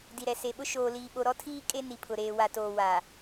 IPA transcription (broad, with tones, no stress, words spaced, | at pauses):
di˨ɾɛ˨se˨ɓʊ˦ ʃoː˨ liː˨ɓo˨ ɾɔ˦tʰiː˦ kʼe˦ni˨ pʰʊ˨ɾeː˨wa˨toː˨ wa˨